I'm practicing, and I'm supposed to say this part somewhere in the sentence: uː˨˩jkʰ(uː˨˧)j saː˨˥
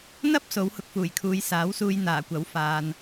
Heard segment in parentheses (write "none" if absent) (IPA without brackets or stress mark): uː˨˧